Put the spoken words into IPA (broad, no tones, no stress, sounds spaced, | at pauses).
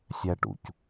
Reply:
sʲ æ ʈ ṵ c